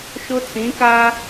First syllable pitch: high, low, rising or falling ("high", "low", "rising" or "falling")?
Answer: high